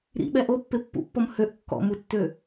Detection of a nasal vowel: absent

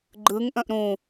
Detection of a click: present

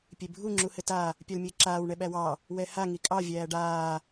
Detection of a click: present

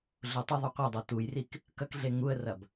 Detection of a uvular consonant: present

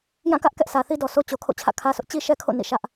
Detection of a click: absent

